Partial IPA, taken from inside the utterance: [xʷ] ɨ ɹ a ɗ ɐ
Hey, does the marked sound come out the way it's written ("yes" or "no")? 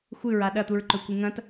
yes